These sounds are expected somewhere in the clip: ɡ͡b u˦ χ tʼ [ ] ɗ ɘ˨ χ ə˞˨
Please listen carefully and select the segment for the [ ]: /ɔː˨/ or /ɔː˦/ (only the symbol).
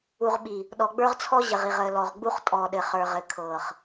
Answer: ɔː˨